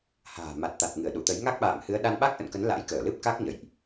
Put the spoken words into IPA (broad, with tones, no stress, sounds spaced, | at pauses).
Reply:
h a̤ː˨˩ m a˨˩ t̚ t̪ a˨˩ t̚ ŋ ɨ˧˩ ə̯ ɗ ṵ˧˨ t̪ ə˨˦ j ŋ a˦˥ k̚ ɓ a̰ː˧˨ m h ɨ˨˦ ə̯ ɗ a˧ n ɓ a˦˥ k̚ ʔ ə̰˧˨ n k ə˨˦ n l a̰˧˥ j k əː˧˩ l ɨ˦˥ p̚ k a˦˥ k̚ ɲ ə̰˧˨ j ʔ